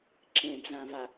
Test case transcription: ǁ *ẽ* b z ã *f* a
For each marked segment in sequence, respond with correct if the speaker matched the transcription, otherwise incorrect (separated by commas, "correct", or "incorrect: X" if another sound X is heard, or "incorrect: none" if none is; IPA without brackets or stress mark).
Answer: correct, incorrect: v